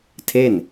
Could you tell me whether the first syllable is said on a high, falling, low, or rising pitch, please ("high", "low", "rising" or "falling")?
falling